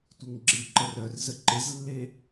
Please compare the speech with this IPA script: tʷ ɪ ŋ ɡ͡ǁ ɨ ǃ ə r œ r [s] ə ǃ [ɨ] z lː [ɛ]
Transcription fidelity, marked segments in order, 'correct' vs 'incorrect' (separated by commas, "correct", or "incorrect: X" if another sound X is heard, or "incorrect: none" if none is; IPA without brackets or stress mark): incorrect: z, incorrect: ɪ, incorrect: e